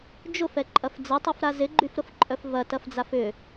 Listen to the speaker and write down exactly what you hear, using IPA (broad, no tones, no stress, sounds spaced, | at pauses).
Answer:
d͡ʒ ʊ f ɛ ǃʼ ɐ f d͡z ɐ tˤ ɛ f ɾ a z ɪ ɡ͡ǃ y f ɾ ʊ f ǃʼ œ f v ɐ t ɐ f d͡z a f ʏ